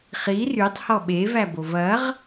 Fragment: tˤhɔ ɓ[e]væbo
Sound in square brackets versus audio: correct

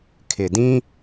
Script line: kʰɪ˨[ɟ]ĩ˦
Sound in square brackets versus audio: incorrect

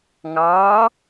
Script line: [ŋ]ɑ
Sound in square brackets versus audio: correct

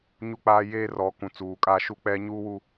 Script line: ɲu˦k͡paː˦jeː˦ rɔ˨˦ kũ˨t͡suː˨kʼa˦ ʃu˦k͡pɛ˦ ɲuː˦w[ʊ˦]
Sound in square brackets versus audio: incorrect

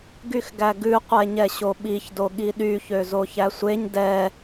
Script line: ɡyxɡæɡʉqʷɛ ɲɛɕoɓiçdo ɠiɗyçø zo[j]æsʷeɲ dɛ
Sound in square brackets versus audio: incorrect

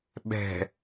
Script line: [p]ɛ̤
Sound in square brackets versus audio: incorrect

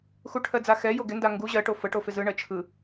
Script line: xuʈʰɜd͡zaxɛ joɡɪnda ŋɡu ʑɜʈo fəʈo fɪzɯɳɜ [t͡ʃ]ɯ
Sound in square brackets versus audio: incorrect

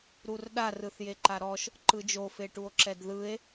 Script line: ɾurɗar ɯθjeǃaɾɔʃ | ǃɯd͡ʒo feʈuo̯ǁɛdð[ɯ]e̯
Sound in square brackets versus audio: correct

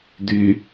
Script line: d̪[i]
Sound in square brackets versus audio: incorrect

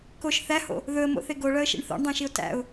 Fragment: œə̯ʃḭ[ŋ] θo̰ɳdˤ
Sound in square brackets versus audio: incorrect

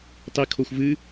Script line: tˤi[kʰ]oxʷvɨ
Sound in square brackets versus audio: correct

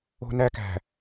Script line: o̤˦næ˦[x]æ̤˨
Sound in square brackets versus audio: incorrect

